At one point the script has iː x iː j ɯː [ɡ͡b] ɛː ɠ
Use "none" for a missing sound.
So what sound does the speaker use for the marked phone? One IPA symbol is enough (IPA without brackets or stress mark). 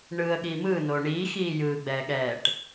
ɡ͡b